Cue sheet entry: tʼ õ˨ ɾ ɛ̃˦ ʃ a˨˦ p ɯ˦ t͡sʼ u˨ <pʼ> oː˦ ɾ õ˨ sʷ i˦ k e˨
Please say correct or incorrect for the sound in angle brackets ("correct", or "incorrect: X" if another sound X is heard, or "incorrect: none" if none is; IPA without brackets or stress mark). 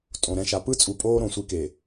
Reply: correct